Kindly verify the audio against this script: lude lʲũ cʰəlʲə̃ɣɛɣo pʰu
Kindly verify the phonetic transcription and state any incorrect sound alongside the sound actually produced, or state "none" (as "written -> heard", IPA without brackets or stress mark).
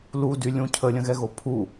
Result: e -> y